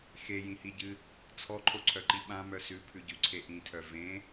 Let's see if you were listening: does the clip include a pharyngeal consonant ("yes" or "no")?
no